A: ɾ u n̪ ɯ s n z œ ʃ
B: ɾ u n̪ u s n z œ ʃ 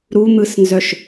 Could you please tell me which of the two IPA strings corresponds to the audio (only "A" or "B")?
A